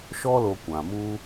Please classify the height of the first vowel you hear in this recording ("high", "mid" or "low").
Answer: mid